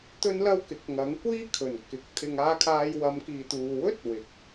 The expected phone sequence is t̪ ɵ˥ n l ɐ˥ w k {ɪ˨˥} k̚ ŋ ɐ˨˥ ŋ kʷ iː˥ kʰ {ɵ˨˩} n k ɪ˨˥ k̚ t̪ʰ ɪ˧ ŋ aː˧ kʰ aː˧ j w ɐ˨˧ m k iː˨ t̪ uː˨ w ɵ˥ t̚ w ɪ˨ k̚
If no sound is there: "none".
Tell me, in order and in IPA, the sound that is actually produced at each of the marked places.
ɪ˨˥, ɵ˨˩

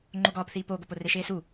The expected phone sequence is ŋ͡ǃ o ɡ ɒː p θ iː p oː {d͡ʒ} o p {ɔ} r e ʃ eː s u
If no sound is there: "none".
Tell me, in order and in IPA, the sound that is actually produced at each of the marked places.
ɡ, o

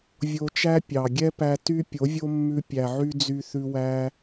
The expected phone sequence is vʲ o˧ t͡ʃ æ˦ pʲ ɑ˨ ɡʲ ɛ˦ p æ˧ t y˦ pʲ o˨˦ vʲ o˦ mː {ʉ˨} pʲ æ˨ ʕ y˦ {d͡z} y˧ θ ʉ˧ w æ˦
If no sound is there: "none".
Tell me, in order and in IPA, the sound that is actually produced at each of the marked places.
ʉ˧, d͡z

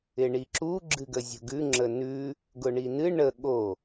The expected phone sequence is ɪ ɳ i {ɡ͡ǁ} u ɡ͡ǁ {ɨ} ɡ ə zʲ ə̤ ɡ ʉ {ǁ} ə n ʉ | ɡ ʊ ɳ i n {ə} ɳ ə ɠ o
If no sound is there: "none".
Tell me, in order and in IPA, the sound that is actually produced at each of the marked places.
ǁ, ɨ, ŋ͡ǁ, ɨ

